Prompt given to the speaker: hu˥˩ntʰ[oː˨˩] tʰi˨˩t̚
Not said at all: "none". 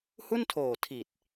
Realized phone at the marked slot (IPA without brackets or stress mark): oː˨˩